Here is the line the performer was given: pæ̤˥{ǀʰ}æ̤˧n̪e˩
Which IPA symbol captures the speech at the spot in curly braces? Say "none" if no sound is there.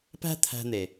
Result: t̪ʰ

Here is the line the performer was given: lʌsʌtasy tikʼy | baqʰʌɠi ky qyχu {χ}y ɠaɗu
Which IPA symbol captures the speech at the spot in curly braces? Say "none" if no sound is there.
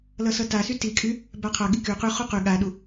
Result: q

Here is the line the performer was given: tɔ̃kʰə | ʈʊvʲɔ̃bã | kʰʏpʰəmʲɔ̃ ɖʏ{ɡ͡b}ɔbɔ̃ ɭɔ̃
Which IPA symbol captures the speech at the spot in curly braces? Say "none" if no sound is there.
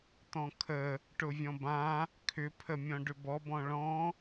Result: b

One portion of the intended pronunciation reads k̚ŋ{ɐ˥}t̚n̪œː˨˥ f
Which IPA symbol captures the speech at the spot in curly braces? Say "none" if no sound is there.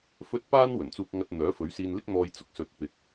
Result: ɐ˧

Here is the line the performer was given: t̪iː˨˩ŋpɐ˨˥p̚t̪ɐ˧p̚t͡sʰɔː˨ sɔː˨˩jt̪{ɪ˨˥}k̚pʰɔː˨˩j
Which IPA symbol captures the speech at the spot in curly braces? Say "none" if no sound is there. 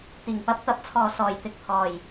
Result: ɪ˨˥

